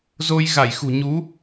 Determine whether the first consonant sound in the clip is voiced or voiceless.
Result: voiced